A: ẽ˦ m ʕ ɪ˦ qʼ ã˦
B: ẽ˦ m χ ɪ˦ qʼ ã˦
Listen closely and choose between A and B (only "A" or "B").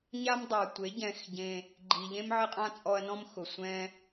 A